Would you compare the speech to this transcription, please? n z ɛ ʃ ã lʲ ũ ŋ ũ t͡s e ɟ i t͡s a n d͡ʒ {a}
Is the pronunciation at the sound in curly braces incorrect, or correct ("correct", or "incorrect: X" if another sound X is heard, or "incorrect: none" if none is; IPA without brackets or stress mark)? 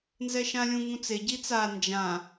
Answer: incorrect: ã